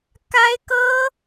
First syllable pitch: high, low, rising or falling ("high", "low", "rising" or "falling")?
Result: high